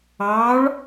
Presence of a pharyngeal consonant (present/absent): absent